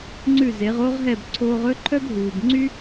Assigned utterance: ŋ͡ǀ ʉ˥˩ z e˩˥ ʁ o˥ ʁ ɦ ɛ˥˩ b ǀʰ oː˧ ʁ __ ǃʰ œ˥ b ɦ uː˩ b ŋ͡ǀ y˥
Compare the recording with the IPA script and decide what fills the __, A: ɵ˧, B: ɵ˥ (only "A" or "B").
B